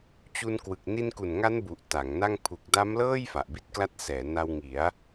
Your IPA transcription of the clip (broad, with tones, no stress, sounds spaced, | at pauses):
t͡ɕ u˧ n k w ɯ˨˩ k̚ n i˧ n k u˨˩ n ŋ a˦˥ n b u˨˩ ʔ t a˩˦ ŋ n a˥˩ ŋ pʰ u˨˩ k̚ d a˦˥ m l ɤː˥˩ j f a˨˩ ʔ b i˦˥ t̚ k l a˦˥ t̚ s ɛː˩˦ n a˧ w ŋ i˩˦ a̯